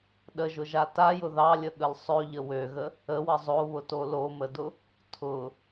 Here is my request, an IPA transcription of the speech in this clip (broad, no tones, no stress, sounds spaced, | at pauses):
ɗ ə ʒ ʊ ʒ a t a j ʊ ð ɑ lʲ ə ɠ ə l sˤ ø ʎ ə w ø ɣ ə | ə w ə zˤ o β ʊ t o l o m ə d ʊ | tʰ ʊ